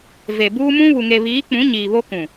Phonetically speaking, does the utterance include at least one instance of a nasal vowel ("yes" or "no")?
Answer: yes